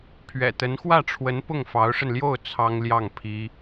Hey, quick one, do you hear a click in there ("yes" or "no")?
no